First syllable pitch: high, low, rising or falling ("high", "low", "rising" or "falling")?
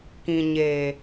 low